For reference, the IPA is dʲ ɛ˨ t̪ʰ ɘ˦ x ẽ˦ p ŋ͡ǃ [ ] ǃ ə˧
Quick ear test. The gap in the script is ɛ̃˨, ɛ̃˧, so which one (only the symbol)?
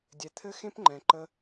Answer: ɛ̃˨